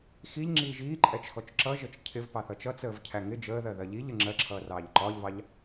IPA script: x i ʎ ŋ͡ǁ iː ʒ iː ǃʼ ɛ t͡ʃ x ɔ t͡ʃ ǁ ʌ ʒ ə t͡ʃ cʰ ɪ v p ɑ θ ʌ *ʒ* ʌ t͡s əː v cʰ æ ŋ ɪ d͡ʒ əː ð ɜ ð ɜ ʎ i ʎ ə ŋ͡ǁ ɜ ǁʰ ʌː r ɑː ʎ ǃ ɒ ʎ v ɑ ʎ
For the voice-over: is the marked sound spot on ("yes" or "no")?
no